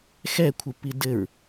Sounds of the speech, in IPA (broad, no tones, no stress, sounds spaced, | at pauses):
x ɛ kʷʰ ɯ p i d ɘ ɹ